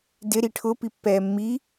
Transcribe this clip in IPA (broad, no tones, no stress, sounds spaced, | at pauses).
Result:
d ɪ ɾ i ʈʰ ʊ p i pː ɛː mː i